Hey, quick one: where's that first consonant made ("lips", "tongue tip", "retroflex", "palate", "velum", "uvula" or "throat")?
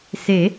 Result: tongue tip